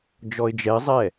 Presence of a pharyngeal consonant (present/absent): absent